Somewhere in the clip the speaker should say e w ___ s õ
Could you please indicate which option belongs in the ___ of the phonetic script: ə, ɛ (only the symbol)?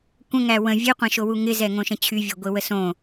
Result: ə